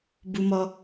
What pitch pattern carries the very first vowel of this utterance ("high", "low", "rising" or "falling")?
high